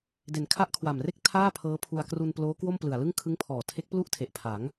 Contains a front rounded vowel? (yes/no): no